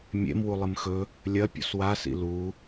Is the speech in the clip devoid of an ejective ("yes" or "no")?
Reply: yes